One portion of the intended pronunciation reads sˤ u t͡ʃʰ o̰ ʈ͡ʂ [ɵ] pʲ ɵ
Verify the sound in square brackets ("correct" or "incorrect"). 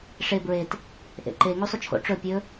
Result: correct